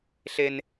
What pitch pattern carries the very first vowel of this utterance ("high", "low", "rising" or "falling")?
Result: high